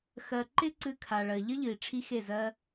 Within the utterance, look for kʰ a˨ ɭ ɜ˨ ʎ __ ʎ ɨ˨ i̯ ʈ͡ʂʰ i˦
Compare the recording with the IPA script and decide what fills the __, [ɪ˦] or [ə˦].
ə˦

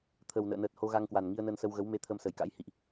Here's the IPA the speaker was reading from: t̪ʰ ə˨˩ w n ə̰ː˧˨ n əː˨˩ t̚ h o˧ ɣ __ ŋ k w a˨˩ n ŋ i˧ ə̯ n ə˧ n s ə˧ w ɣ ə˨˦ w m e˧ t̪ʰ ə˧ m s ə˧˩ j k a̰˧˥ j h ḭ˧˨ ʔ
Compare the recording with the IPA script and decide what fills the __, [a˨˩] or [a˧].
a˧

